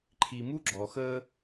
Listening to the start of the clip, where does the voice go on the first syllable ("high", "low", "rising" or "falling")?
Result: low